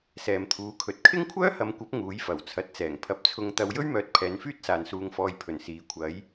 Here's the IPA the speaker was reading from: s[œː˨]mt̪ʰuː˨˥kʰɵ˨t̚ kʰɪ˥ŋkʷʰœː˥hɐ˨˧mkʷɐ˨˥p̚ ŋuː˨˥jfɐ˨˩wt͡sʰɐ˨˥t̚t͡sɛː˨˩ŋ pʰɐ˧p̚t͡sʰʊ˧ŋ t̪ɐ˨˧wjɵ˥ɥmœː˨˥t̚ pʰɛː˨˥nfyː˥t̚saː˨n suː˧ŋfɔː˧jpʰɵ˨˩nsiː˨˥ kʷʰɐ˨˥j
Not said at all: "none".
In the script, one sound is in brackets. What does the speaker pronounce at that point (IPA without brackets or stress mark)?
ɛː˨